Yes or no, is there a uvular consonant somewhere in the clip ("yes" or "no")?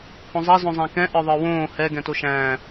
no